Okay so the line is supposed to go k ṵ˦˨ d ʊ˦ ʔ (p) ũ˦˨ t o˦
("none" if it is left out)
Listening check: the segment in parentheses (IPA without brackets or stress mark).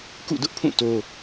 pʰ